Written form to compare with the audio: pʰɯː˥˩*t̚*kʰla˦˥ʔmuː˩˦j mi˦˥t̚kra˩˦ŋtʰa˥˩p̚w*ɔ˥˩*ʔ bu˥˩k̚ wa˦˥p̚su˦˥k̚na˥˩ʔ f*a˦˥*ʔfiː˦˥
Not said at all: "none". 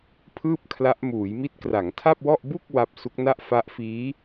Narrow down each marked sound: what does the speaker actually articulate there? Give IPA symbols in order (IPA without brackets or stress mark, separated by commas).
p̚, ɔ˥˩, a˦˥